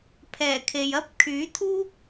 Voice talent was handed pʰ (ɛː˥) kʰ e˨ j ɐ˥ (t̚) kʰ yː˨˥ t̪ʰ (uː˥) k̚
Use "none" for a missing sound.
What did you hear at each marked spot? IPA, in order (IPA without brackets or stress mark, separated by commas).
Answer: ɛː˨˩, p̚, uː˥